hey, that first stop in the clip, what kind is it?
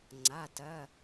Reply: click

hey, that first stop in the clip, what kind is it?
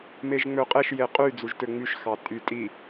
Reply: ejective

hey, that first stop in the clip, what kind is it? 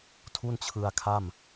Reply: aspirated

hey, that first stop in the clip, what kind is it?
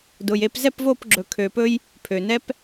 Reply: plain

